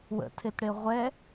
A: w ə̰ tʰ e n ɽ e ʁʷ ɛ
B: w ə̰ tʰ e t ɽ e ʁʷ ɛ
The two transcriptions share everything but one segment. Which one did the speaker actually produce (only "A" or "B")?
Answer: B